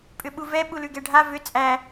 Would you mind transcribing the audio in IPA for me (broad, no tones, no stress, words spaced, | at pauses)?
pʼʏɓuvɛ ɓulʉɡɛɖʱa vʏ t͡sʼæ